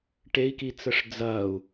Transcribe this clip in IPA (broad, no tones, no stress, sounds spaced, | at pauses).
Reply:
ʈ e i̯ k i t͡s ə ʂ d͡z ɐː u̯